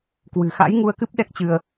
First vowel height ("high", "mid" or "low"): high